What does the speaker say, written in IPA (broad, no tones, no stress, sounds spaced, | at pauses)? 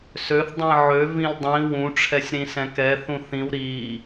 s ø θ dˤ ĩ ʕ ø v ĩ l dˤ ĩ w ũ ʈ͡ʂʰ ɛ sʲ ɾ ĩ s ɛ̃ k ɛ θ ũ θ ĩ w ɾ i